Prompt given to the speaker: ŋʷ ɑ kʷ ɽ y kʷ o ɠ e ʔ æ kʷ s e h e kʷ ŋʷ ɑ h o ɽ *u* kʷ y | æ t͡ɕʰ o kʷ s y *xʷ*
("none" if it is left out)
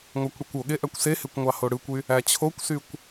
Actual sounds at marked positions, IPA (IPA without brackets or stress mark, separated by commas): ɯ, kʷ